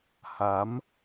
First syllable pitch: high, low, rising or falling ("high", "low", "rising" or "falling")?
rising